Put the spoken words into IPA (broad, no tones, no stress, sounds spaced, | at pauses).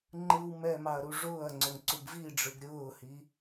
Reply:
ŋ͡ǃ ɯ w m ɛ m ɑ ɐ̯ ɾ u ʐ ʊː ɐ̯ ŋ͡ǀ o ŋ ǀ u b v i ɖ͡ʐ ɯ ɡ ɾʲ ʊː h i